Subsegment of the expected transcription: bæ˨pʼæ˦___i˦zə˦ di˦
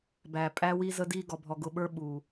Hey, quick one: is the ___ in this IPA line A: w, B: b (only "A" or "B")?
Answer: A